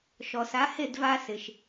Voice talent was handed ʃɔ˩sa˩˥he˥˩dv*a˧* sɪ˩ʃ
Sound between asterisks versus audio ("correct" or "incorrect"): correct